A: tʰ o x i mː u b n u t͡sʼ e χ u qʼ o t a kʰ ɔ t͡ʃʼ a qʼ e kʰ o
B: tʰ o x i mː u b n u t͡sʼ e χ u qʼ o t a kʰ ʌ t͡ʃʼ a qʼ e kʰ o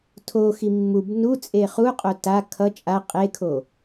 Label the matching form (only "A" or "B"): B